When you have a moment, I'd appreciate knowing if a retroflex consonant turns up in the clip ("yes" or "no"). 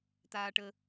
yes